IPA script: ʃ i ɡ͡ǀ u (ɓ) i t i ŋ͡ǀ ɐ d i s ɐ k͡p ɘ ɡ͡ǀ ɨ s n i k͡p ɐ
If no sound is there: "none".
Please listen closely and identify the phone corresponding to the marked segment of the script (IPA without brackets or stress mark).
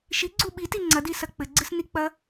ɓ